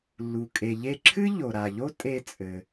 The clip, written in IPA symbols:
lːu˩kʼe˩ʎe˧ǁʰɨ˥ ʎo˩ɾa˩ʎo˥ tʼe˧t͡sʼɘ˩

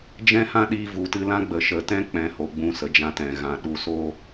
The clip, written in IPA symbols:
d͡ʒɛ̃˦hã˦ɗiː˧ vu˨tɨ˧lã˦ɡ͡bə˨ ʃə˨tɛ̃˦ k͡pɛ̃˧ho˨ɡ͡bũ˧ sə˨d͡ʒã˧tɛ̃˨ ɣã˨ ɗu˨soː˧

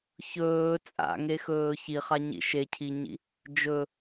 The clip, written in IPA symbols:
çɵː t͡sʼa̰ŋexɵː çiχaɲḭ ʃecʰiɲḭ | d͡ʒɵ

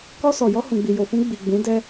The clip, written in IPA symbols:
kɔ˧ sɔ˨jɔ˧ hũ˨ɡ͡bi˨jo˨fũ˧ ɡ͡bi˨ ɡ͡bũ˨˦dɛ˦

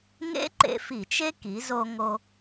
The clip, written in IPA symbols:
ŋḛ˥ǃḛ˧fi˧˩˧t͡ʃe˥ ki˩˧zo˧ŋo˧

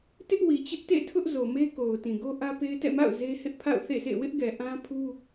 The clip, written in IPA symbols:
tɪ˦ʔwi˨ t͡ɕɪ˦ʔtḛ˦˨tʰʊ˦ʔ zo˨me˦ko˨ʊ̯ tĩ˨ɡo˦ʔä˦pe˦ɪ̯ tɛ̰˦˨ma̰˦˨ʊ̯ ze˦ hɪ˦ʔpʰa̰˦˨ʊ̯ θḛ˦˨sḛ˦˨ wɪ˦ʔɡɛ˨ ʔã˦ pʰu˦

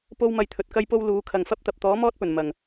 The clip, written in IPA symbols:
po˥wmɐ˧jt̪ʰɵ˨t̚ kɐ˥jpo˥w luː˨˧kʰɐ˨ŋfɐ˥p̚t̪ɐ˨p̚ t̪ɔː˨˥ mɔː˥t̚pɵ˨˩nmɐ˨˩ŋ

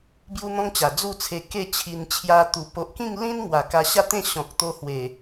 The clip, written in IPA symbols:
bju˦n̪ɔ̃˦ŋt͡ɕa˨˩ d͡zu˥˧t͡sʰe˧ ke˥˧t͡ɕʰi˧n t͡ɕʰja˦t̪u˧ po˨ʔkĩ˥˧ŋlĩ˦n ŋwa˨˩ka˧ɕa˦t̪ẽ˥˧ ɕɔ̃˨k̚t̪o˧hwe˨˩

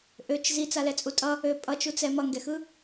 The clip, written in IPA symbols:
ʔøt͡ʃ zit͡salɛt͡sʼu tʼʌ | ø pʼʌt͡ʃut͡sɛ mʌŋɡɛxɯ

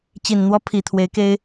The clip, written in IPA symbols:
t͡ɕi˨˩nn̪wɔ˥ pʰi˨˩t̪ʰwe˧˥ɪ̯ke˥ɪ̯

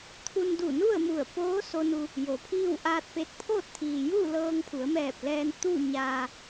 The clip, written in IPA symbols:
t̪ʰu˧n du˧˩nu˥˨ə̯mu˧˩ə̯poː˧˥ so˧nu˧ | jo˩˧pʰiː˥˨w ʔaː˧t̚pe˧t̚pʰoː˥˨t̚ t̪ʰiː˩juː˥˨ lɤː˧ŋ pʰu˩˧ə̯mɛː˧˩p̚ lɛː˧nt̪u˥˨ ɲaː˧

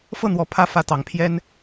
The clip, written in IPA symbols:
fɤ˥˨n̪wɔ˨˦ pʰä˥˨fä˥˨t̪ɑ˨˦ŋpʰjɛ˦n

